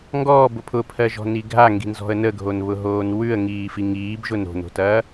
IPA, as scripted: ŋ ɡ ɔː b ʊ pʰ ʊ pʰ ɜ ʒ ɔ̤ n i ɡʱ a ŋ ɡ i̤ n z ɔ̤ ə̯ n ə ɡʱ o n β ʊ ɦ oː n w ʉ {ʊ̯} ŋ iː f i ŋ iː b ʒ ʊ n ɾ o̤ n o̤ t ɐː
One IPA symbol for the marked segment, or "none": ə̯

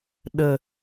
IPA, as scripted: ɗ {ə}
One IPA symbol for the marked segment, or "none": ə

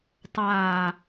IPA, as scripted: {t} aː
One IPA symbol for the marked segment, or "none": tˤ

